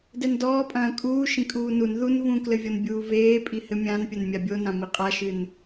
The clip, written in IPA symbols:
d ɛ n d ɔː pʼ ɐ̃ː kʼ uː ʃ ĩ kʼ uː n u n ð u n v ũ k l ɘ vʲ ɔ n bʲ uː v eː pʼ i h ɘ mʲ ã n pʲ ɐ n mʲ a bʲ o n ã m i qʼ a ʃ ɨ n

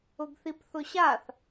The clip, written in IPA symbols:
ʊ ɡ θ i p θ ʊ ɕ a θ

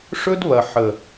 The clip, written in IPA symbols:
ʂ ɵ˦ d β ɐ˨ ħ ə˨

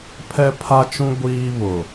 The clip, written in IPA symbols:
pʰ ɛ˦ pʰ a˦ t͡ʃ ũ˦ ɡʷ iː˦ β ʊ˨

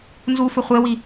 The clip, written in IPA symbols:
n z u f ɵ χʷ e w i

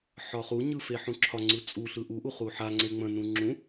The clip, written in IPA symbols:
ħ ɒ χ u ɲ ɯ f e ħ ũ ǁʰ ɒ ŋ͡ǀ ɯ t͡sʼ u ɬ ɯ ʔ u ʔ u χ u ħ a ŋ͡ǀ e ŋ͡m ə̃ n ũ ŋ͡ǁ ũ

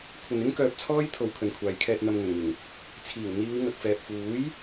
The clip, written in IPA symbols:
kʷʰ ɐ˨ n ɪ˥ ŋ k œː˧ p̚ t͡sʰ ɔː˥ j t̪ʰ o˨ w kʰ ɵ˨ n kʷʰ aː˨ j kʰ ɛː˧ t̚ n̪ ɐ˧ m ŋ ɵ˨˩ n ŋ ɪ˨˩ ŋ | t͡sʰ iː˨˩ w n̪ iː˨˧ w ŋ ɐ˨ k̚ f ɛː˨ p̚ f uː˨˥ j

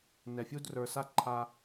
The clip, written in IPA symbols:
n ɛ˧ fʲ u˦ d r ə˞˧ s a˦ ǃʰ a˧

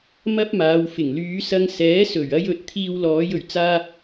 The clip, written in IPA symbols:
m ɐ˥ p̚ m aː˨˧ w f ɪ˨˩ ŋ l yː˨˧ s ɐ˧ ŋ s ɛː˨˥ s ɵ˨˩ ɥ ɐ˥ j ɵ˨ t̚ t̪ʰ iː˧ w l ɔː˨˧ j ɵ˨˩ ɥ t͡s aː˧

